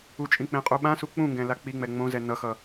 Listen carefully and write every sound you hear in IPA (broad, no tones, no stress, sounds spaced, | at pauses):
u t͡ʃʼ ĩ k͡p ẽ qʼ u ɓ ã s u k͡p ũ ŋ ɡ ɛ̃ l a k͡p i ŋ͡m ɛ ŋ͡m õ z ɛ n ʌ x ʌ